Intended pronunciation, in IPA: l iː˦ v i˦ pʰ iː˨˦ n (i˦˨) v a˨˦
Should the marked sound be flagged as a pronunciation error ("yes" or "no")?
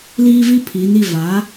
no